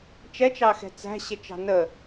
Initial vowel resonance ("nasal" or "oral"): oral